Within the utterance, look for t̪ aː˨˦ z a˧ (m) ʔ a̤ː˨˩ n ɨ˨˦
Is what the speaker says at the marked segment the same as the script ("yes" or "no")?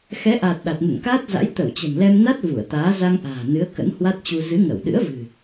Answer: no